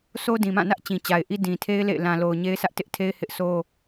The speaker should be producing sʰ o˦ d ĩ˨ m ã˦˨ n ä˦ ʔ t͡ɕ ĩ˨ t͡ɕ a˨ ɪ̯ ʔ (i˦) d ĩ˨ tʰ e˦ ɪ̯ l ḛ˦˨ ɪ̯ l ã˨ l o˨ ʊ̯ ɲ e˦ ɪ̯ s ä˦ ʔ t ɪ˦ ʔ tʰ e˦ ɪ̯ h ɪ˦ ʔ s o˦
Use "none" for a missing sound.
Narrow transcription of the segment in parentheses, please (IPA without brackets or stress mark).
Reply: i˦